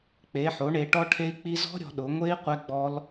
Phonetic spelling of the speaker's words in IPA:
k͡p e˩˧ ħ o˩˧ ɳ e˩˧ ʈ ɔ˦˥ ʈʰ e˦˥ i̯ k͡p i˦˥ z ɔ̤˦˥ ɾʲ ɔ̤˩˧ ɗ ʊ˩˧ ŋʷ e˦˥ i̯ qʷ ɛ˦˥ ɡ͡b ɔ˦˥ l

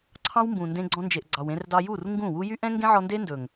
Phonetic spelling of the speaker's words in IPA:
ǀʰ ɑ̃˦ w m b ũ˨ n d ẽ˧ ɡ͡ǀ ɔ̃˧ n d͡ʒ e˨ ʔ ɡ͡ǀ ɑ˨ w ẽ˧ r d ɑ˧ j u˦˨ r ŋ ɡ ũ˦˨ w u˦ j y˦ ʔ ɛ̃˦ ŋ ɡ ẽ˦ ʕ ɔ˧ n d e˦ n d ɵ˨ ŋ

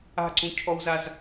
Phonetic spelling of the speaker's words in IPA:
a̤ ǀ ũ cʰ ɔ w z a z

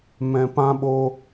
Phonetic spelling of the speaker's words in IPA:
m ɛ̃˨ p ã˧ ɓ o˧

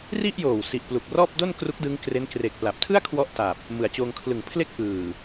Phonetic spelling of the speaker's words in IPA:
r i˥˩ ʔ j oː˨˩ w s i˨˩ ʔ p l u˨˩ k̚ r ɔː˥˩ p̚ d o˥˩ n k r u˦˥ k̚ d ɯ˦˥ ŋ k r e˦˥ n k r e˨˩ k̚ p l a˨˩ p̚ tʰ ɯ˥˩ a̯ kʰ w ɔ˥˩ ʔ t a˨˩ p̚ | m ɯ˨˩ a̯ t͡ɕ oː˧ ŋ kʰ l ɯ˩˦ ŋ pʰ l e˦˥ k̚ ʔ ɯː˨˩

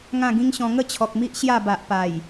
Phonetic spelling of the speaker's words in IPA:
ŋ ã˥˧ ɡ ĩ˦ ŋ ɕ ɔ̃˧ ŋ ə˥˧ t͡ɕʰ ɔ˨ k̚ m i˦ ʔ ɕ j a˥˧ b a˨ ʔ p a˨˩ j

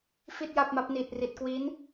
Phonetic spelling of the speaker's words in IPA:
f i˥˩ t̚ j a˥˩ p̚ m a˦˥ p̚ n iː˨˩ t̚ r i˨˩ t̚ k w iː˦˥ n

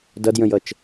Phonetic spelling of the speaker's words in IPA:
d ʌ d j ə̃ j ʌ t͡ʃ

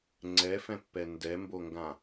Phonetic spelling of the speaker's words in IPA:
ŋ͡ǀ ɛ f ɛ̃ pː ɛ n d ɛ m b o ŋ ɡ ã

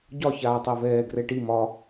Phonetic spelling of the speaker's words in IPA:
ɟ ɒ ç aː tˤ ɛ v ɛː ɡ r ɛ ʈ i m ɒ

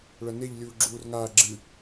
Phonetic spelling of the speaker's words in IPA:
ɭ ɐ n e ʎ lʲ uː ɡ͡ǁ uː r ŋ aː ɡ͡ǁ ɨ

